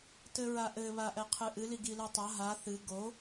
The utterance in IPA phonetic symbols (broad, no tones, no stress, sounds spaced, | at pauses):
t ɘ ɹ a ʔ ɘ β a ʔ ɛ qʰ ɨ ʔ ɨ l i ɡ i l ɨ tˤ a ɦ a θ ɨ ɡ o